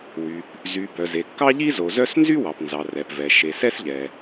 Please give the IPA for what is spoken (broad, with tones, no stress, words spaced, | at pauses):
wy˩p | zy˩ bœ˩ze˩ kːɑ˥ʎi˥zo˩zœ˥s nzy˥wɑ˩pnzɑ˩ rɛ˩pvɛ˩ ʃe˩sɛ˥sʎɛ˩